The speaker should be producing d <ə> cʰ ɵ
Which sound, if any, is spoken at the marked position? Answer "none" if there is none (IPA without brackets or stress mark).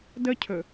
ə